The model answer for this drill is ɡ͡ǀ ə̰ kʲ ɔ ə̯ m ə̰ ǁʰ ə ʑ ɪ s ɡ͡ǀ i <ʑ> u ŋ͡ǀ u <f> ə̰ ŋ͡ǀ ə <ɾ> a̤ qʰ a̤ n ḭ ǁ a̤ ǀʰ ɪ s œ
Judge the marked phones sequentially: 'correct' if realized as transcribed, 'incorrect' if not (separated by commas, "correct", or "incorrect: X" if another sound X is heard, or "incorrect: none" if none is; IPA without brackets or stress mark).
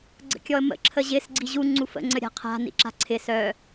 correct, correct, incorrect: ɾʲ